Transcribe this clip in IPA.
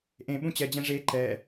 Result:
ʔ ẽ ɓ ũ t͡ɕ ɛ d͡ʑ ɛ̃ ʐ e ǃ ɛ

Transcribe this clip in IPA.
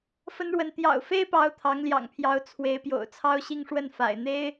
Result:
f ə˥ n ɻ w ə˧˥ n t̪ j ɑ̰˨˩ ʊ̯ f e˥ ɪ̯ p ɑ˧˥ ʊ̯ t̪ʰ ɑ˧˥ ŋ l j ɑ̰˨˩ ŋ pʰ j ɑ˧˥ ʊ̯ t͡sʰ w e˧˥ ɪ̯ p j o̰˨˩ ʊ̯ t͡sʰ ɑ˥ ʊ̯ ɕ i˥˧ ŋ ʂ w ə˥˩ n f a̰˨˩ ɪ̯ n̪ e˥ ɪ̯

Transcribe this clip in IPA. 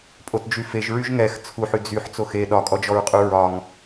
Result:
pʼ o t d͡ʒ y f e ʒ ɹ y ʒ ŋ ɛ x t͡sʰ u ħ y d͡z y ħ t͡s o x e ɗ ɒ kʼ ɔ d͡ʒ ɔ ɹ qʼ u ɹ ɒ ŋ

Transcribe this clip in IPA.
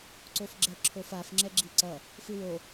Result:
ǀ o f ɡ͡ǁ ɛ ǁʰ o f a f ŋ͡ǁ ɛ ɡ͡ǁ i ǀ ʌ | f ɯ w o

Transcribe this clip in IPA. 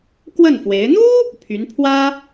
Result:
k w ə˥˩ n f w e˧˥ ɪ̯ n̪ u˥ | pʰ y˧˥ n pʰ w ä˥

